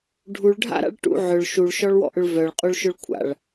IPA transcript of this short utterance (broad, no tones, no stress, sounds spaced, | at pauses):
ɖʱ u ɭ ɖʱ a̰ ɾ a̰ ɭ ʈ ṵ ʕ ʏ ɭ ʃ u ɭ ʃ ɔ ɭ w ɔ̰ ʔ ʏ ɭ v œ ɭ qʼ u ɭ ʃ ʏ ɭ kʷʰ a̰ ɭ